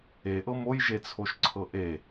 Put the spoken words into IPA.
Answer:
e ʔ ɤ m o j ʒ e t͡sʰ o ʃ ǀʰ ɤ ʔ e

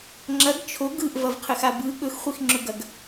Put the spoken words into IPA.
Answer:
ŋ͡ǁ ɐ ɡ t͡ʃʰ o ɡ ɯ ʔ v ɐ v qʰ ɘ x a b ɯ ɠ ɵ x χʷ i x ŋ͡ǁ ɵ ɡ ɐ ɡ

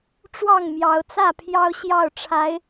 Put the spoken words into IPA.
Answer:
ʈ͡ʂ w ɑ˥˨ ŋ m j ɑ˨˦ ʊ̯ t͡s ä˥˨ pʰ j ɑ˦ ʊ̯ ɕ j ɑ˥˨ ʊ̯ ʈ͡ʂʰ a˨˦ ɪ̯

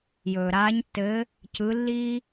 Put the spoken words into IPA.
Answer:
j ɵː˩ ɾ aː˨˦ ɲ tː ɘː˨˦ | c ɯ˨˦ lː iː˦

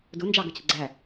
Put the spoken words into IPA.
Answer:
d ʊ n d͡ʒ ɑ ɡ ʌ cʰ ə ɡ͡ǀ æ

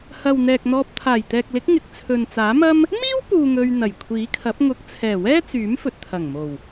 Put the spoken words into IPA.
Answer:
h ɐ˨ w n̪ ɛː˨ k̚ n̪ ɔː˧ p̚ t̪ʰ aː˨˩ j t̪ ɛː˨ k̚ l ɪ˨˥ k̚ ŋ ɪ˨ k̚ t͡sʰ ɵ˨ n t͡s aː˨˥ m ɐ˥ m | m iː˥ w p uː˨ ŋ ɵ˧ ɥ n̪ ɐ˨˩ j kʷʰ iː˨˥ kʰ ɐ˨˥ p̚ ŋ ʊ˨˥ k̚ t͡sʰ ɛː˨˩ w ɛː˥ t͡s yː˨˥ m f ɵ˨ t̚ t̪ʰ ɐ˨˩ ŋ m o˨˩ w

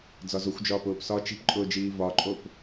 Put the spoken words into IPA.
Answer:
d͡z ɒ z o xʷ d͡ʒ ɒː p ʊː p s ɒ t͡ʃ i̤ p ǃʼ ʊː d͡ʒ iː v ɒ ǃʼ o p

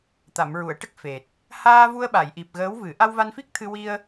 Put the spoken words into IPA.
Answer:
t̪ a˨˩˨ m ɹ u˨˩˨ ə̯ ʈ ə˦˥ k̚ f e˨˩ t̚ | h aː˧ v u˧ ə̯ ɓ a˨˩˨ j ʔ i˨˩ p̚ ɣ əː˧˥ w v ɨ˨˩˦ ʔ a˧ w v a˧ n f i˦˥ k̚ t̪ʰ ɨ˧ w i˧ ə̯

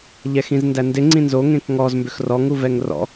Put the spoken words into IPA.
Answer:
ʎ ɛ x ĩ z n d æ n d ɪ ŋ͡ǀ ĩ n z o ŋ ẽ k ŋ ɔ z m b ʏ x r ɔ ŋ u v ɛ ŋ r ɔ̰

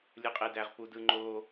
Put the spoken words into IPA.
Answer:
lʲ ɯ qʼ e d æ ʁ p u d ɯ ŋ͡ǃ o

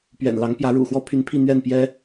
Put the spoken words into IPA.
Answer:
p ɥ ɛ̰˨˩ n l ɑ˧˥ ŋ p j ä˧˥ ɻ ṵ˨˩ x w ɔ˥ pʰ y˧˥ n pʰ i˥˧ n̪ ɥ ɛ˥˩ n p j ɛ˥

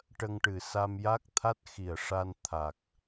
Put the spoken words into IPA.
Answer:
ʈ ə˧ ŋ ʈ ɨ˨˩ s a˧ m j a˦˥ k̚ t̪ʰ a˦˥ t̚ x i˨˩ ə̯ ʂ a˧ n t̪ʰ a˨˩ k̚

